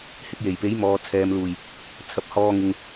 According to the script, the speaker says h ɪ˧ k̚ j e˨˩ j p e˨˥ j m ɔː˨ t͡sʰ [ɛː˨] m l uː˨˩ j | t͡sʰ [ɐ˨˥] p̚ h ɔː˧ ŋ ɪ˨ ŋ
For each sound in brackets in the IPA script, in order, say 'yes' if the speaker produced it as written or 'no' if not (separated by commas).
yes, no